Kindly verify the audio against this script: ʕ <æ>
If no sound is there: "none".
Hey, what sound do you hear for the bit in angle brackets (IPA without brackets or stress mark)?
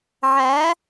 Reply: æ